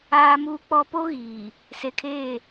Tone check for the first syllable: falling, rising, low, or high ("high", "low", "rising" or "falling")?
low